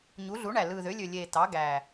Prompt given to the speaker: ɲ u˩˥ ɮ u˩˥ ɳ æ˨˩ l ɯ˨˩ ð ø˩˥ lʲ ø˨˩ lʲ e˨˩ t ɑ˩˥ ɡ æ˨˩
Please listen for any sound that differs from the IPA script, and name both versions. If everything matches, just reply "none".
none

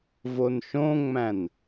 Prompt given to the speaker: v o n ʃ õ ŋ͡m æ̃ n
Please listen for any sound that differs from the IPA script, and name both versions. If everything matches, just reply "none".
none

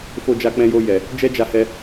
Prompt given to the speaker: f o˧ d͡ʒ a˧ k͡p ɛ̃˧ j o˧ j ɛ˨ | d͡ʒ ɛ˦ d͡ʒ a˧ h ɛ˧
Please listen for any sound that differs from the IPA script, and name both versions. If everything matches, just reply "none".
none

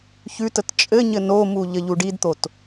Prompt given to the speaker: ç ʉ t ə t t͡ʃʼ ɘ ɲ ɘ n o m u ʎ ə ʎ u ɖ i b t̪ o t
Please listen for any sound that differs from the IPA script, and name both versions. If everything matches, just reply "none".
b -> d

